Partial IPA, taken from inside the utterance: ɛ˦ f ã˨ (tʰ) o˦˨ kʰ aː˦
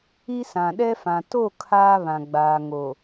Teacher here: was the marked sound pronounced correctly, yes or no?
no